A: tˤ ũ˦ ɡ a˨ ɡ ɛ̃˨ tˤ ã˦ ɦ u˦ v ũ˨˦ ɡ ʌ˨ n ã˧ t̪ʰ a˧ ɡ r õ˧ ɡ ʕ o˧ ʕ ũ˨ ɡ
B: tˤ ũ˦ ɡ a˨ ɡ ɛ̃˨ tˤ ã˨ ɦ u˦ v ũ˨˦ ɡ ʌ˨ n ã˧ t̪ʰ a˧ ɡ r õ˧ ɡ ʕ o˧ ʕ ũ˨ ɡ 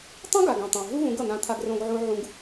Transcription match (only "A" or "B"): B